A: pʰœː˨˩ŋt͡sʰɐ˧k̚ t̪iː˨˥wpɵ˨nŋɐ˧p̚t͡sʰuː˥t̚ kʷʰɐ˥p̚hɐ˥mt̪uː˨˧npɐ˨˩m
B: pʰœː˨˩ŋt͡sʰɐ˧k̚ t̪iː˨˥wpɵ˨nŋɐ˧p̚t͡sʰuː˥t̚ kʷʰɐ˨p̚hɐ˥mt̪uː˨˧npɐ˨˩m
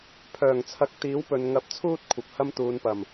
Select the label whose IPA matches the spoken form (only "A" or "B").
B